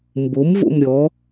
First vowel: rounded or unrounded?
rounded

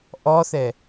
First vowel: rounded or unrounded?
rounded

